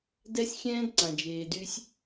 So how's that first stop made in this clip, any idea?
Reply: plain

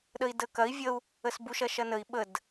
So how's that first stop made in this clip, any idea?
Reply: implosive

